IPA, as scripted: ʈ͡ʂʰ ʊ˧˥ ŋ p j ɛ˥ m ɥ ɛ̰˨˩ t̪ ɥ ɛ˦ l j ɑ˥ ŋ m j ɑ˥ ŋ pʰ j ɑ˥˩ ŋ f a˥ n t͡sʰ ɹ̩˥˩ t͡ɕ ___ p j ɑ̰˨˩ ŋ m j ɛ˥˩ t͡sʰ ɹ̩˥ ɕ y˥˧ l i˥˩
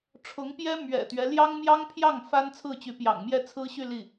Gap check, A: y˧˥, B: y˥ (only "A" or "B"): A